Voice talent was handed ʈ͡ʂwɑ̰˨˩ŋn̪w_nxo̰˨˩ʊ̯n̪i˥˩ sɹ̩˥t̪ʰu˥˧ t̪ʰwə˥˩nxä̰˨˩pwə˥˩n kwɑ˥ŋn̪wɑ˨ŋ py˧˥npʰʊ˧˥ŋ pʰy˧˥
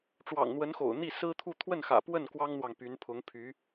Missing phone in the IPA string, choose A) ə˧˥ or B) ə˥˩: A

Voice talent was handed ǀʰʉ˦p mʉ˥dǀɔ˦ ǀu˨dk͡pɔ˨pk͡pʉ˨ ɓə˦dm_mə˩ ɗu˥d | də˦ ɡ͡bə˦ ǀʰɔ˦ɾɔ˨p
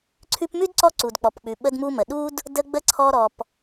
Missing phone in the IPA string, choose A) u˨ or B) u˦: B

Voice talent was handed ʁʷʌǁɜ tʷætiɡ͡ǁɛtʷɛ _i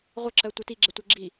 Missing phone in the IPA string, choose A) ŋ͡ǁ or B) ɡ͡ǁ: B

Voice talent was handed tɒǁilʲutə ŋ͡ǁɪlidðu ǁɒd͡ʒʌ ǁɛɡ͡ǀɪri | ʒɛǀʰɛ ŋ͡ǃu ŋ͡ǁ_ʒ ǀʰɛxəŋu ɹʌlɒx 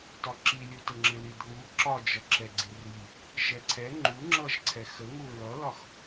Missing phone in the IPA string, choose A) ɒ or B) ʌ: B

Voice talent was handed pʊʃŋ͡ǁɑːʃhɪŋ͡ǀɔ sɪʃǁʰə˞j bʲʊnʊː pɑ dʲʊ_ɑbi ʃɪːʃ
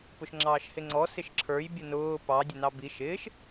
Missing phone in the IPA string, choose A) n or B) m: A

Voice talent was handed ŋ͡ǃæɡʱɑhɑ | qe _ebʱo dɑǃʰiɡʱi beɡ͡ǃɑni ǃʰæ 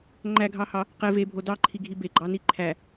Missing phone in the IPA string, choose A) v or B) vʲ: A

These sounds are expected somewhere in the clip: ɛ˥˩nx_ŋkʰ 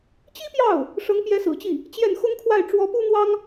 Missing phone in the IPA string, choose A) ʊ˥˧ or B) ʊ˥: B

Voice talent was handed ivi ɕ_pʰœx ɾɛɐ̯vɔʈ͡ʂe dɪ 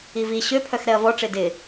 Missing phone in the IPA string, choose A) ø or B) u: A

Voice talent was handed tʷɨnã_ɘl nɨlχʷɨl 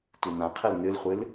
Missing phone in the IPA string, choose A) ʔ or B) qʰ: B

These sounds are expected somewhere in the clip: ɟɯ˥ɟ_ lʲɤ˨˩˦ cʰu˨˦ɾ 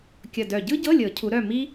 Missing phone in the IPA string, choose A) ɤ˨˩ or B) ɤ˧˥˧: B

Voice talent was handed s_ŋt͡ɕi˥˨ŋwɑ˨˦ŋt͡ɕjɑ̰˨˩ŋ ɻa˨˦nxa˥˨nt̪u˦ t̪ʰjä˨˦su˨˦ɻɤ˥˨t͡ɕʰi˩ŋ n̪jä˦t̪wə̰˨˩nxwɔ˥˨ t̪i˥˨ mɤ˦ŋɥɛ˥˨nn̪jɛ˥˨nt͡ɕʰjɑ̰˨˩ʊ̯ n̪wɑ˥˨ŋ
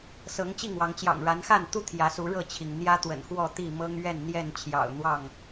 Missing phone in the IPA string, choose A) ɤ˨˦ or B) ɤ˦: A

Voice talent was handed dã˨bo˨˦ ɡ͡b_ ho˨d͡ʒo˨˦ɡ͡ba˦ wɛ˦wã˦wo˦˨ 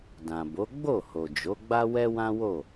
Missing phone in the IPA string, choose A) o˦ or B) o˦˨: B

